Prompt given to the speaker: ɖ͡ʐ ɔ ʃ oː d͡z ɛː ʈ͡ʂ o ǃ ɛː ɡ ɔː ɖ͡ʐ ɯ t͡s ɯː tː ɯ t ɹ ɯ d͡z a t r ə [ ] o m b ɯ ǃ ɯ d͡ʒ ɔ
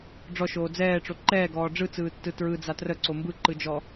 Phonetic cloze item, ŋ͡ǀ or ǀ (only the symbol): ǀ